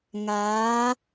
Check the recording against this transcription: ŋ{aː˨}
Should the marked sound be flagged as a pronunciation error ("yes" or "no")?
yes